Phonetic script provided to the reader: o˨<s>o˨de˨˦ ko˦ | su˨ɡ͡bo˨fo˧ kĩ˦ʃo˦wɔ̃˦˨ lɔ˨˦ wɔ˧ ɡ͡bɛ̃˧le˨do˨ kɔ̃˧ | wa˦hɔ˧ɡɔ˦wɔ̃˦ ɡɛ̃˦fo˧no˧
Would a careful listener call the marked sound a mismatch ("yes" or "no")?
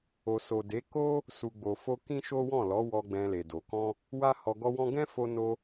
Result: no